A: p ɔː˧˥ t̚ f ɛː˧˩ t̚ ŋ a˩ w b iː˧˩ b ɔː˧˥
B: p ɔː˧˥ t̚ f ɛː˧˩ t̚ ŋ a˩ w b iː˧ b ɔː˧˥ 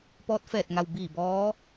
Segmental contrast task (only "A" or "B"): A